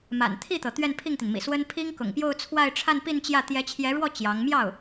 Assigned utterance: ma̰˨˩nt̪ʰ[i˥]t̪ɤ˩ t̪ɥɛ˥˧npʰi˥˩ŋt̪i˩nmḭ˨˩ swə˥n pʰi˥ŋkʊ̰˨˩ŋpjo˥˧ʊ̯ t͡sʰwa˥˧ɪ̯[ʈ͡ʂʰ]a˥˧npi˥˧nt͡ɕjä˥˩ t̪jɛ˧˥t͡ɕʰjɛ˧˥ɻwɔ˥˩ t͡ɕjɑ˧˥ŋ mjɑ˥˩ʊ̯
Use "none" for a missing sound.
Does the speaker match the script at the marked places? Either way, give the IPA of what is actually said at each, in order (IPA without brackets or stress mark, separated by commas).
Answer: i˥˩, ʈ͡ʂʰ